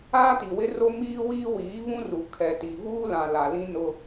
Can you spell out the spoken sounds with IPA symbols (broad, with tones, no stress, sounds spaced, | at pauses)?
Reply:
aː˦ t i˨ w ɪ˦ r o˦ m iː˦ w iː˦ w iː˨˦ β ũ˦ r u˨ kʰ ɛ˨ t i˨ v uː˦ l ã˨ l a˨ l ĩ˦ n ʊ˦